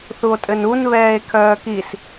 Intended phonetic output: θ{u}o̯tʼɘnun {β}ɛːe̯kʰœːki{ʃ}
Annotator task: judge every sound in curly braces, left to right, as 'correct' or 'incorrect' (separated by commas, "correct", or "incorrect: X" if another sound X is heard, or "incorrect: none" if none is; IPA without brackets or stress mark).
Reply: correct, correct, incorrect: s